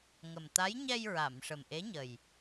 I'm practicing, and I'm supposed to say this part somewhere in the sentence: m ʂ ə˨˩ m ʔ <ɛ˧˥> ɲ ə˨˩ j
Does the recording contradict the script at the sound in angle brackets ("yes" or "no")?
yes